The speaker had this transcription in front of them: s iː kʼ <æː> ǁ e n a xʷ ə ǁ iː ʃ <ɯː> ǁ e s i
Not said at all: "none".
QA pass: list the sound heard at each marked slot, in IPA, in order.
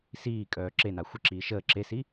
œː, əː

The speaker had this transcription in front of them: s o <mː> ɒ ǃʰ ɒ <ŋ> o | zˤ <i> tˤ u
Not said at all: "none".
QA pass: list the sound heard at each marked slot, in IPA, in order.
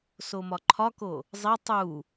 m, k, i

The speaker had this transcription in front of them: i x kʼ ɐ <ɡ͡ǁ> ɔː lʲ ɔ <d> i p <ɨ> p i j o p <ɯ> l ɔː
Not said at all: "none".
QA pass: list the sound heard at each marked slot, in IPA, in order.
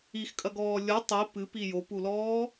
ɡ, tˤ, ɨ, u

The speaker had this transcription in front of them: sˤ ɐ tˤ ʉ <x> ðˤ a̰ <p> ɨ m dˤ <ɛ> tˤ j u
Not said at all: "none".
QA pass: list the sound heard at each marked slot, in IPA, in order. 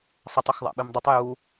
x, ɓ, ɨ

